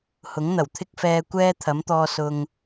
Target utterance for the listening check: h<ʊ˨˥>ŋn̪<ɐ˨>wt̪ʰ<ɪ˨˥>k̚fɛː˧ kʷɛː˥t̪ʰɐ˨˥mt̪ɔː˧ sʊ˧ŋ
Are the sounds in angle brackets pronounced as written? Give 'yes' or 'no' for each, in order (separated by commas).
yes, no, no